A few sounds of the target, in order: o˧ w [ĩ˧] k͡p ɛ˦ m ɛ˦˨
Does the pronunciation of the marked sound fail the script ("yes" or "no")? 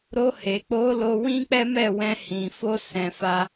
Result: yes